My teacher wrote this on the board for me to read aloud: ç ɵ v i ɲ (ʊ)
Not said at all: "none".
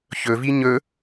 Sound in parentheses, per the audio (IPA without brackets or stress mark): ɵ